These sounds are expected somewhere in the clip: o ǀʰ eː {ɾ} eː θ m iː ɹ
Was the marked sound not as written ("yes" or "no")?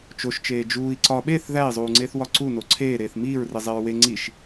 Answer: no